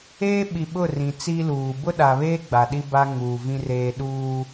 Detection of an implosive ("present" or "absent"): present